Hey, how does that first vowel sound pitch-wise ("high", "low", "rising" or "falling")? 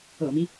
low